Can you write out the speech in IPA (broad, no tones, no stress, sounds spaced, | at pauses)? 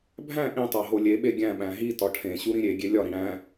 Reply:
bʱ æ̃ ʔ ĩ tˤ æ ɦ o lʲ e ɓ e ɡʲ æ̃ ɓ æ̃ ɦ i t ɒ ʈʰ ẽ ɕ u ɾ ĩ ɾʲ e ɡʲ e lʲ ɒ ɾ ĩ ɽ æ̃